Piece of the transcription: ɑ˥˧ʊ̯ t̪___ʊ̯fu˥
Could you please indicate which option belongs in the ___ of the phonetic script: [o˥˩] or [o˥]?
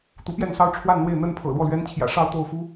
o˥˩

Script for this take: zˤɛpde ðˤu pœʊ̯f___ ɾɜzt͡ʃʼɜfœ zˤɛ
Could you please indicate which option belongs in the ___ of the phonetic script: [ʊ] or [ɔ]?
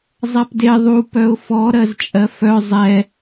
ɔ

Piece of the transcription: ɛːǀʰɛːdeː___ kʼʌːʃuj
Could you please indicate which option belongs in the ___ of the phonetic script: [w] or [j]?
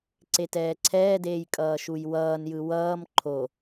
j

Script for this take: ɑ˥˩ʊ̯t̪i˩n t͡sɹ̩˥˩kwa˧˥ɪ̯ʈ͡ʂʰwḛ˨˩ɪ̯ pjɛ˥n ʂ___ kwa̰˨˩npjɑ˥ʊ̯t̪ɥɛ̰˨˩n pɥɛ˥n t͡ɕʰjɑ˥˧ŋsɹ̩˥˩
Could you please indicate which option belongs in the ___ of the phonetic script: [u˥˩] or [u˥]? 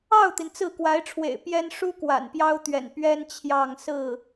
u˥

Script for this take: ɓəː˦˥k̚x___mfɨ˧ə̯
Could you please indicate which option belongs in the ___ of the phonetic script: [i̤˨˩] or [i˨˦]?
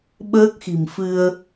i̤˨˩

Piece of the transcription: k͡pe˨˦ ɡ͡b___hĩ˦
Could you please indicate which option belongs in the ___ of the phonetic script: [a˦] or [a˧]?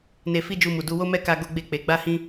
a˦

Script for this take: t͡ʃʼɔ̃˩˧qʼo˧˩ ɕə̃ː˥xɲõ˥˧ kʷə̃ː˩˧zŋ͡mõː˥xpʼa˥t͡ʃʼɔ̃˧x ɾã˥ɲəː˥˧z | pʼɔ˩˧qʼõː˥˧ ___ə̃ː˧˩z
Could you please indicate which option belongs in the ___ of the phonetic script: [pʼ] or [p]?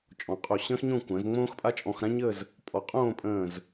pʼ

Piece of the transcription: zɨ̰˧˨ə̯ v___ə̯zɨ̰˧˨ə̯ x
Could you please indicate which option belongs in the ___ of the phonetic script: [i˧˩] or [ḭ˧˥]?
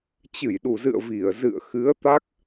i˧˩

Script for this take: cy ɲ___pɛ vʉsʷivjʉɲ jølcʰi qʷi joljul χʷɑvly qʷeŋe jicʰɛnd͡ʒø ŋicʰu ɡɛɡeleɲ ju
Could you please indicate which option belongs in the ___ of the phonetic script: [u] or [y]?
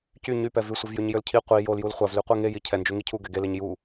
y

